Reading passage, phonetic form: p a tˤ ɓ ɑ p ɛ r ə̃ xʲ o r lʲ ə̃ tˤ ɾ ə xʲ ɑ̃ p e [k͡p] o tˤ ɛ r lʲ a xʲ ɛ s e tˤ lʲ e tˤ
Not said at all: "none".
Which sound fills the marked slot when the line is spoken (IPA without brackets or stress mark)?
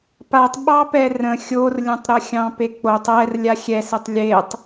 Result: k͡p